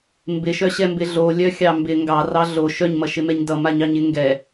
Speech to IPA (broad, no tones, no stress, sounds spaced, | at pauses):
m b ɪ ʃ œ ɕ ɛ m b ɪ ɮ o lʲ œ xʲ ɑ m b ɪ ŋ ɡ ɑ r ɑ ɮ o ʃ œ ɲ m ʌ ʃ ɪ m ɛ ɲ d ʌ m a ɲ ɑ ɲ ɪ ŋ ɡ ɛ